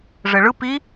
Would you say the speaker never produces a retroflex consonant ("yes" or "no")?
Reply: no